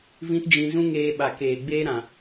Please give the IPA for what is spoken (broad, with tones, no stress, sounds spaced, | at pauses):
v ĩ˦ t d͡ʒ ĩ˧ z ũ˦ ŋ eː˧ ɓ a˨ k eː˨ ɡ͡b eː˦ ɾ ã˨